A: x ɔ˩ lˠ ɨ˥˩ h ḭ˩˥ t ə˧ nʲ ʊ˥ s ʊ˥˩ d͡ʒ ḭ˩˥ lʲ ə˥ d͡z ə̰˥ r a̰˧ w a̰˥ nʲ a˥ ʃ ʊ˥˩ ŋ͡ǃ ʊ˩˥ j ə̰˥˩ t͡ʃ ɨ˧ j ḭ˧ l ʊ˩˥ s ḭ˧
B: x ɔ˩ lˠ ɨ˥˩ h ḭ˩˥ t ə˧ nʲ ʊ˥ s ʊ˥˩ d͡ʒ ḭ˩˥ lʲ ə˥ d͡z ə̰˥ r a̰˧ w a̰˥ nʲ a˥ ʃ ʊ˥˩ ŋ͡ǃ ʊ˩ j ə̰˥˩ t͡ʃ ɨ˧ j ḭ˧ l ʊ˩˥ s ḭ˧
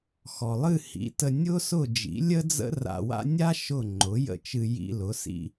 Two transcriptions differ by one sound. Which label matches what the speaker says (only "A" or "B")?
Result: A